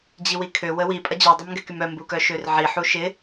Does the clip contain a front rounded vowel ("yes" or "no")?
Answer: yes